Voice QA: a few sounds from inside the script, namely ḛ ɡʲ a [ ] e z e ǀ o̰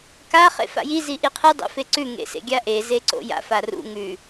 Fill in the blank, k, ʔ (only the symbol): ʔ